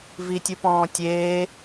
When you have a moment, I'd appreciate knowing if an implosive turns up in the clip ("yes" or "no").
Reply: no